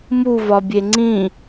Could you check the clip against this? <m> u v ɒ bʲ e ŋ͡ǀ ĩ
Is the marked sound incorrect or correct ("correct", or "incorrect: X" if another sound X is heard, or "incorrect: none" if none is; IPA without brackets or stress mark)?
correct